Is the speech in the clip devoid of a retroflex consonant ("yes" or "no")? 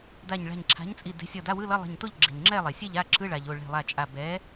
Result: no